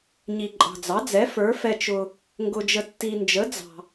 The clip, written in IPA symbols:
ɲi˨ǃʼɑ̤˨d͡zɑ˩˥d͡zɛ˩˥ fə˞˩˥ fɛ˨t͡ʃʊ˨ | ŋɡʊ˨d͡ʒə˨ tːi˨nd͡ʒə˩˥ d͡zɑ̤˨

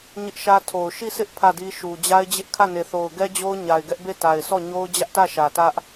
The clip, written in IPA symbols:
ɲɪ˦ʔʃä˦tʰo˨ʊ̯ ʃi˦˨sʰɪ˦ʔ pʰä˦˨di˦ʃu˨ d͡ʑa˦ɪ̯d͡ʑɪ˦ʔkʰä˦˨ne˨ θo˨ʊ̯ɡɛ˦ d͡ʑo˦ʊ̯ɲa˨ɪ̯ɡɛ˦ʔbe˦˨ ta˨ɪ̯sʰɔ˦˨ ɲo˦ʊ̯d͡ʑä˦ʔtä˦˨ ʃä˨tä˦ʔ

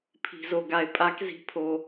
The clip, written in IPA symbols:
pʰi̤˨zo˨ɡa˨e̯ pʼa˧˥kzi̤˧˥pʰo˨

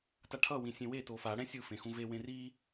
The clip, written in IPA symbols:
taʈʰʌ wĩsʲẽwe tofa ɽɛ̃sʲɯ fẽxũve wẽri

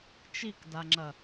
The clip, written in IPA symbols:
t͡ʃikdaŋ͡ǁɐ

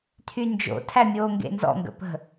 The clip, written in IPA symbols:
tʰynd͡ʒo̰ tʰæmʲoːŋɡḛnzɔ̰ ŋɡə̰pə̤

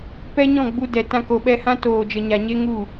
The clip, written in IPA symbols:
pɛ˦ɲɔ̃˦˨ ɡ͡bu˧dɛ˨ tã˧ko˨ɓɛ˧hã˦ toː˨d͡ʒə˨ɲa˨ ɲe˦ŋu˦˨

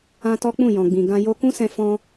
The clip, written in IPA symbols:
ã˦ tɔ˦k͡pũ˦˨ jɔ̃˨ɡ͡bĩ˨ ɡã˧ jo˧ kũ˦sɛ̃˧ fɔ̃˧

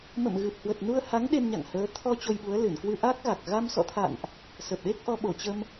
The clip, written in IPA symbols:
mə̰˧˨mɣɨ˨˩p̚hwə˨˩t̚ nu˧ə̯ ha˨˦ŋ ɗe˧mɲa̰˧˨ŋhəː˨˦ t̪ʰɔ˧ t͡ɕo˧jɓu˨˦ə̯ lɨ˧˩nkwɨ˧ʔa˦˥k̚ɣa˨˩k̚ ɣa˧msɔ̰˧˨t̪ʰa̰˧˨nʔ | sə˨˩p̚ɗe˦˥k̚ ʔɔ˨˦ɓo˧˩t͡ɕə˧m

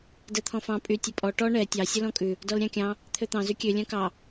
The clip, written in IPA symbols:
dɛt̪ʰɔ̃fɑ̃ pʼy tʲɵpʼɔ ʈɔ ɳɛ tʲɑ sʲɵlɔ̃kʼʉ | dɔlɾʲɑ̃kʲɑ̃ | t̪ʰøt̪ɑ̃ zykʲø lʲœ̃kɑ

